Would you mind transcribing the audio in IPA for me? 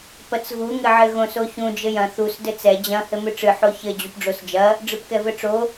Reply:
p ɐ t͡s ɣ u ŋ ɘ ʕ ɘ ɣ õ s o ç ũ d͡ʒ ɘ j ɐ̃ θ u s d ɘ t͡s ɛ d͡ʑ ɐ̃ h ɘ m ɨ ʈ͡ʂ ɨ ħ o ç ɘ d͡ʑ u p ɖ͡ʐ o s d͡ʒ ɐ | ɖ͡ʐ ɨ p k ɛ v ɘ ʈ͡ʂ o

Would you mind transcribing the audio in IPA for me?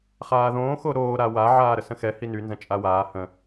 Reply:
χ aː ð õː x o ɾ oː ɾ a w a ʕ aː ɾ ə s ə̃ x ɛ h i n y n z ə̃ t͡ʃʼ a w aː h ə̃

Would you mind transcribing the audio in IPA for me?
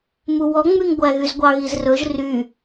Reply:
m u w ɔ ŋ͡m y ŋ ɡʷ æ ɣ y z ɡʷ ɑ ɣ i z r ɵ ʒ r y

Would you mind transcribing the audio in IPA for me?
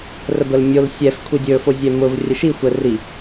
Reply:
r ə b ə l mʲ o l sʲ ɛ f kʷʰ i dʲ ɵ f o zʲ ɛ m ʊ v rʲ ə ʃ i xʷ ɛ r i

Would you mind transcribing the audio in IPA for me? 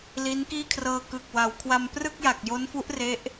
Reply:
l i˦˥ n k iː˥˩ kʰ r ɤː˧ k ɯ˨˩ k̚ w a˩˦ w kʰ w a˧ m p r ɯ˥˩ k̚ j a˨˩ k̚ j o˦˥ n f u˦˥ ʔ r e˦˥ ʔ

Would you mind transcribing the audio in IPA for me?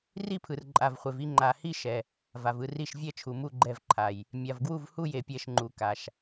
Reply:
r i˥˨ pʰ ɯ˨ r ǃʼ a˨ v χʷ e˨ v i˥˨ ŋ͡ǃ a˨ h i˥˨ ʃ ɛ˨ | v a˨ v ɯ˥˨ r i˥˨ ʃ vʲ ɛ˥˨ t͡ʃʰ u˨ m u˥˨ ɡ͡ǃ ɛ˥˨ v ǃʰ a˨ j | mʲ a˨ v ɡ w u˥˨ v h u˥˨ j e˨ pʲ ɛ˥˨ ʃ ŋ͡ǃ u˨ k a˨ ʃ

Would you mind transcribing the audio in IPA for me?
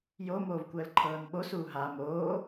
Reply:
j o m oː v kʷ əː l ǃʰ ɤː n ɓ o s uː ɦ a m oː

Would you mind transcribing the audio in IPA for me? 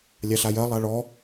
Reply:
lʲ a ɬ a j ɜ lˠ a ɭ ɔ

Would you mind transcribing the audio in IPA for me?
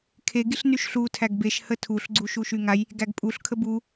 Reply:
kʰ e ɡ i ɬ n y ʃ ɬ u tʰ æ ɡ b e ʃ h ə tʰ u ɬ ɡ͡ǀ u ʃ u ʃ y ŋ a j | ɡ æ ɡ pʼ u ɬ kʰ ə b u

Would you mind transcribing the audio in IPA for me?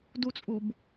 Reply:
d u t͡sʼ u b

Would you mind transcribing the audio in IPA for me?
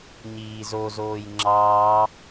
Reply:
ɲ iː z o z oː j ŋ͡ǁ ɑː

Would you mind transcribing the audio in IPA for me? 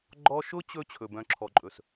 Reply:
ɡ͡ǃ ɔ˧ ʃ ʊ˦ t͡ɕ ɵ˧ t͡ɕʰ ɵ˨ b œ̃˨ ǁʰ ɔ˨ ǃʼ ɵ˨ s

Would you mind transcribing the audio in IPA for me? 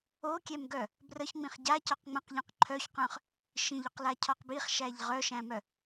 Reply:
o kʲ ɛ m ɡ œ | b r ə ç ŋ͡m ĩ χ ɟ a c ɔ q ŋ͡m ə̃ q ʎ œ̃ q ǃʰ œ ç q œ̃ χ | ʃ ĩ ʎ ʏ q l a cʰ ɔ q b i χ ʃ æ ʎ ʁ œ ʃ æ̃ m œ

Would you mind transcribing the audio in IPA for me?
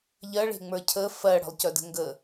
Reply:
ʎ ɜ ɭ e̤ ŋ͡m ə˞ cʰ ə f ɜ ɽ ə̤ lˠ c œ d ə̤ ŋ ɡ ə

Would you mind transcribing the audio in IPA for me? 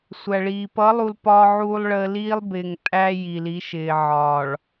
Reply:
sʷ æ˨ ɭ iː˨ p ʌ˨˦ lˠ u˨ l p ɒː˦ ʕ uː˦ lˠ ɭ əː˦ l iː˦ lˠ b ɪː˨ ŋ tʼ æ˦ j i˨ l i˨˦ ʃ ɪː˨ ʕ ɒː˨ ɭ

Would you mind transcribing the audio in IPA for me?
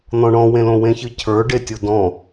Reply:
n̪ ɔ̃ ɳ ɔ̃ w ẽ l õ w ẽ ç ɨ cʰ ə˞ ɖ e tʲ o d ɔ̃

